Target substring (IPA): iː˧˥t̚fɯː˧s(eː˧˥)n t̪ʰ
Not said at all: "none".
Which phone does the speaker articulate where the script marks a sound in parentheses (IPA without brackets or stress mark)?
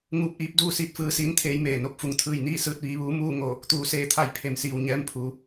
iː˧˥